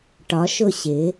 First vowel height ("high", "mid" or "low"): low